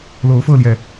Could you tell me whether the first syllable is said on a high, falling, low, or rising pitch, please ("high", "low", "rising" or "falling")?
rising